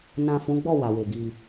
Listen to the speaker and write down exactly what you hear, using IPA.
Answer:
nã˨ fũ˨˦ɡ͡bɔ˦˨ wa˨we˨ɡi˧

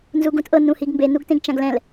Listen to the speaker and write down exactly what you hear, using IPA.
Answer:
nzuɡũtʔɤ nũhiɡmbe nuɡtẽɡt͡ʃãɡlɛ̃l

